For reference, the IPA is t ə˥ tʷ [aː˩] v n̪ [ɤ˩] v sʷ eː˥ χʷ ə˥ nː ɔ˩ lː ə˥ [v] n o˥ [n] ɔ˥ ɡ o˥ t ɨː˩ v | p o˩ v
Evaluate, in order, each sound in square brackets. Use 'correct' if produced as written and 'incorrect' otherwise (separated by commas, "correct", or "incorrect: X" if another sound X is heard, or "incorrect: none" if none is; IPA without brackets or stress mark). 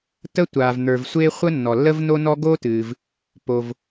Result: correct, incorrect: ə˞˩, correct, correct